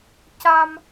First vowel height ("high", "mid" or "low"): low